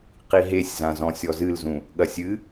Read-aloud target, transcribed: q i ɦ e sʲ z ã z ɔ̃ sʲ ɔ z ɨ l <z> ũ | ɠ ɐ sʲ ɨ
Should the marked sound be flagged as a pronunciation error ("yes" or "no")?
no